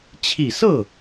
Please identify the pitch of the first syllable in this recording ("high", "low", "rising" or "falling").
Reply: low